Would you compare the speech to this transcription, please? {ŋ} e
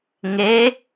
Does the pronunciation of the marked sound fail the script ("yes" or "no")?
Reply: no